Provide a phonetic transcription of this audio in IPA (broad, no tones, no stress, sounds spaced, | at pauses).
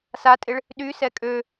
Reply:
s a tʼ ɪ ɭ | ɗ y s ɛ kʼ ø